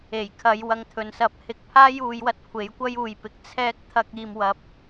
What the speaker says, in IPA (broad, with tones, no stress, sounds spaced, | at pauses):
e˨˩ j kʰ ɐ˨˧ j w ɐ˨˧ ŋ t̪ʰ ɵ˨ n s ɐ˨˥ p̚ h ɪ˨˥ k̚ pʰ aː˥ j uː˨˧ j w ɐ˧ t̚ kʷʰ e˨˥ j kʷ ɐ˥ j uː˨ j p ɪ˨˥ k̚ t͡sʰ ɛː˥ k̚ t̪ʰ ɐ˥ k̚ iː˧ m w ɐ˧ p̚